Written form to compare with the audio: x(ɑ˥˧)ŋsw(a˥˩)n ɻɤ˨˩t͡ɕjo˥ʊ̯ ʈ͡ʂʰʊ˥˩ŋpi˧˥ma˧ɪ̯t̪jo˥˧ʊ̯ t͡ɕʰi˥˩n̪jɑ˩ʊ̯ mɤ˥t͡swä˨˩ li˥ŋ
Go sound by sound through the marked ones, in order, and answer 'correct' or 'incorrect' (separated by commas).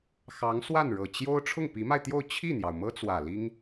incorrect, correct